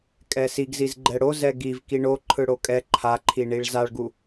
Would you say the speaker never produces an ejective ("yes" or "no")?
no